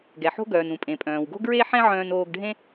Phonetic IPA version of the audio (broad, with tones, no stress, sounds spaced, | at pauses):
ɡ ɛ˩ ħ o̤˥ ɡ œː˩ n ũ˩ pʼ ẽ˩ pʼ œ̃ː˩ w ɡ o̤˥ ɡ ɹ e˥ ħ ɛ̃˥ ʕ œ̃ː˧ n oː˧ ɡ ɖʱ ẽ˥